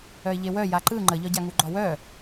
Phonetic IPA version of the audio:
œ ɪ̯ ʎ e w œ j a ǃ ɯ ŋ͡ǃ ə ʎ ɒ ɟ a ŋ u ɡ͡ǃ ɒ w œ

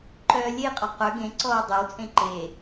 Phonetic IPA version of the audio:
ǃ œː lʲ e qʼ ɒ q œ ɡ ẽ ǀ ɔː dˤ œ w t͡sʼ ẽ ǃ e

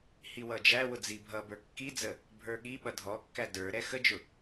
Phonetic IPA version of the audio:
h i w ʌ d͡ʒ æ w ʊ d͡z i bʱ ʌ b ə˞ kː i d͡z ə | bʱ ə˞ ɠ i ɓ ʌ dʱ ɔ kː æ d ə˞ ɾ ɛ x ə d͡ʒ ʊ

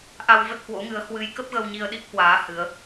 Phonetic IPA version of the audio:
ʔ a˧ w v ə˦˥ t̚ h w o̰˧˥ ŋ ɨ˨˦ ə̯ h w ɨ˨˦ j k ə˦˥ p̚ ɣ ə˧ w ɲ i˧ ə̯ ɗ i˦˥ k̚ h w aː˨˦ h ɨ˨˦ ə̯

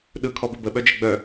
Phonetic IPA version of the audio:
ɗ ɯ kʰ ɔ b ɪ b ə ɓ œ d͡ʒ ɪ ɡ͡b œ

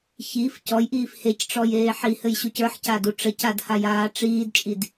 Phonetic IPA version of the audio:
ç i f c ɔ j ʔ iː f h e c ʈ͡ʂ ɔ j eː ħ i h ɘ j ɕ u c ə˞ ħ c a d u ʈ͡ʂ ɘ c a d h a j aː ʈ͡ʂ iː d t͡ʃʼ i d

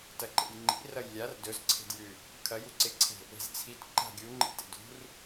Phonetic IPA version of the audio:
t ɐ ǃ ḛ j ŋ͡ǃ ḭ r ɐ j lʲ a r d ɵ z ǀʰ e̤ d j ʉ | kʰ ɐ j u ǀ e ǀʰ e̤ | e̤ z t͡sʰ i t ǃ a̤ ɡʲ u ŋ͡ǃ ḭ t ḛ d ṳ r

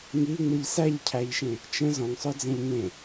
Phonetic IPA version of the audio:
ŋ i ŋ͡m ɯ ʎ s æ ʎ cʰ æ ʎ ʃ ẽ | t͡ʃ ə̃ z ɔ̃ ŋ sˤ œ d͡z ẽ ʎ ŋ ẽ

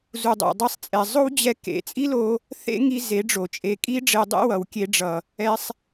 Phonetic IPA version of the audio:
z u˨ dˤ o̰˨ dˤ i˧ sˤ t͡sʼ ɛ˨ zˤ o˦ w d͡ʑ ɛ˧ k ḛ˨˦ t͡sʼ i˦ l o˧ | θ ḛ˦ ŋ i˧ z e˨˦ ɖ͡ʐ o˨ t͡ʃʼ e˧ kʼ i˦ ɖ͡ʐ e˧ dˤ ḛ˦ w ʌ˨ w kʲ e˧ ɖ͡ʐ ʌ˨ | ɛ˧ sˤ

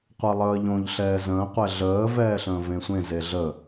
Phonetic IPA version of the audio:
qʷ əː lˠ əː ʎ õ ʎ ɬ ɛː z ə̃ː qʷ ɛ ɮ əː v ɛː ɬ ə̃ː v ẽ sʷ ẽ z e ɮ ə

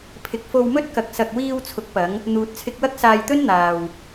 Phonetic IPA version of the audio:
pʰ ɪ˨ k̚ f o˧ w m ɵ˥ t̚ k ɐ˨ k̚ s ɐ˨ k̚ w iː˧ w t͡sʰ ʊ˨˥ k̚ p ɐ˨˧ ŋ | n̪ uː˨ t̚ t͡sʰ ɪ˧ k̚ w ɐ˥ k̚ s aː˧ j t̪ ɵ˥ n n̪ aː˨ w

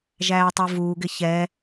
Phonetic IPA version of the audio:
ʒ æː tˤ u v uː ɡ ɪ ç ɛ

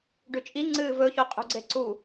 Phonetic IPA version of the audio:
ɖ ʉ t͡ʃʼ i ŋ͡ǀ ɨː v ɵ ç o qʼ ṳ ɡ͡ǀ e ǀ u

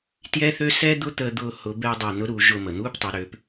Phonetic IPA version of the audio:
t j ɛ˥ θ øː˥ s ɛː˥ d̪ ʊ˥ t̪ əː˥ d̪ ʊː˥ h ʊ˧˥ b ɛ˥ dˤ ɛ˧ n ʊ˧˥ ɾ uː˩˧ ʒ ʊː˧ m ə˩ n̪ uː˥ p tˤ ɛ˩˧ ɾ øː˩˧ p

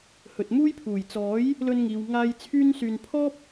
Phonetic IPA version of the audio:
h ɵ˨ t̚ m uː˥ j pʰ uː˨˩ j t͡s ɔː˨˥ j | l ɵ˧ n ŋ iː˨ w ŋ aː˧ j t͡sʰ yː˥ n s yː˧ n pʰ ɔː˥ p̚

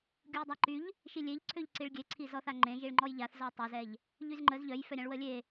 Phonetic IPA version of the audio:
ɡʲ u j dˤ a ǃ y ʎ | ʃ i lʲ e ʎ ǀʰ ø ʎ ǀ i ɭ ɡʲ e ǀʰ i z ɔ θ a ŋ͡ǃ ẽ ʒ i ɭ ŋ͡ǃ ɔ j ʎ a θ z ɔ tˤ œ z ɛ ʎ | ʎ y z ŋ͡ǃ ə z ʎ œ j f œ ɾʲ ã ɭ w ə lʲ e

